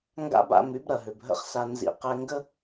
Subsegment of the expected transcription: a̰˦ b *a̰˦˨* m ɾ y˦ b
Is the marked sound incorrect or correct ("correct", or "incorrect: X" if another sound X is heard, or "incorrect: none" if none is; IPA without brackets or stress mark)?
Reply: correct